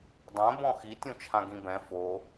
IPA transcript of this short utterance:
dˤ ɛ̃ b ɔ̃ x i tʲ ũ t͡ʃʰ ã ɡ ĩ b ɛ̃ f o

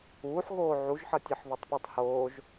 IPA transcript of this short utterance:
uː ħ ɣ oː ʕ u ʒ ħ ʌ tʲ ʌ ħ β o tˤ p o tˤ h oː ʒ

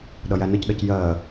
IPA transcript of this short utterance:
ɗ ʌ j æ n ə c ɗ ʌ c j ɜ

